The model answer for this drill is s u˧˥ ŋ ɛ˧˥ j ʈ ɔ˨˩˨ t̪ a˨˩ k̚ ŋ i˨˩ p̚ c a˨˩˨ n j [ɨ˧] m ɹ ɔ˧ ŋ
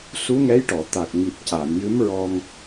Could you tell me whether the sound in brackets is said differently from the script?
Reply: yes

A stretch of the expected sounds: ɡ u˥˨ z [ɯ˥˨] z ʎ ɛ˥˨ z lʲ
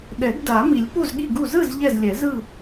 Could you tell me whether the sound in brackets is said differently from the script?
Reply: no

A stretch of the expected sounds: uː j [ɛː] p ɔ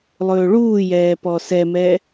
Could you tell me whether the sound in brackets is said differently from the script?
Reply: no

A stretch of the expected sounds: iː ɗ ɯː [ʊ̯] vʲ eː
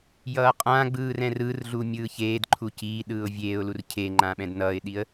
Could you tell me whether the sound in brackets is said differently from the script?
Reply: no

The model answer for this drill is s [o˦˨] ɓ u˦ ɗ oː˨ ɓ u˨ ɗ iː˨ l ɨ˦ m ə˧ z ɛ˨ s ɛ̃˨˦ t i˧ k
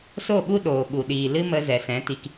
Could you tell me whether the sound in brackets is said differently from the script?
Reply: no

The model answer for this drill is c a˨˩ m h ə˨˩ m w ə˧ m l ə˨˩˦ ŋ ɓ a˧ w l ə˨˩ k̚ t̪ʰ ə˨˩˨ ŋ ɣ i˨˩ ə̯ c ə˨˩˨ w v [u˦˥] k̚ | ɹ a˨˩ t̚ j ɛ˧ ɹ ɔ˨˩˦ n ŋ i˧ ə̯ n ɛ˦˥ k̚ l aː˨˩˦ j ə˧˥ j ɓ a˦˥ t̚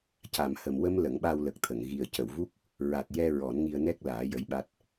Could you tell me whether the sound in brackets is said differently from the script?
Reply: no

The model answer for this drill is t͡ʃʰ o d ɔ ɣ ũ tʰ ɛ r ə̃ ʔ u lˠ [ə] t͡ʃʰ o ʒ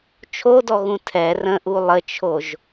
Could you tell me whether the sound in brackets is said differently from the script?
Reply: no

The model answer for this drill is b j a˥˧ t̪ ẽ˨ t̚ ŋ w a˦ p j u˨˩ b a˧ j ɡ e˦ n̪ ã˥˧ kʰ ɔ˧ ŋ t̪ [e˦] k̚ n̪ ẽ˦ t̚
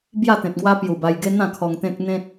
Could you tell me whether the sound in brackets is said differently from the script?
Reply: yes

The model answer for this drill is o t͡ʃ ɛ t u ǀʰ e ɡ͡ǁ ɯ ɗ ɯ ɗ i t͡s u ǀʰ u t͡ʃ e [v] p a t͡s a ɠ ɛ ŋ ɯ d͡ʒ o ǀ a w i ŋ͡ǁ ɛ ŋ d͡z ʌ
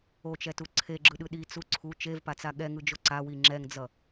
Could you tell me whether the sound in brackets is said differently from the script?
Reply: no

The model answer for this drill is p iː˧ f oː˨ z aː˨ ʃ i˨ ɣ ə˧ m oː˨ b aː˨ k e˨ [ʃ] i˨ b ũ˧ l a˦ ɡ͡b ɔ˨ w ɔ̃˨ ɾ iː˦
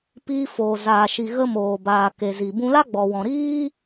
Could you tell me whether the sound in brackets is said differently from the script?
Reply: yes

